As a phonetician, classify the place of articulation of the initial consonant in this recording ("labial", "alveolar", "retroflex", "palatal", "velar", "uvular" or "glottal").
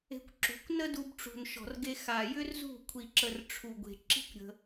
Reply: velar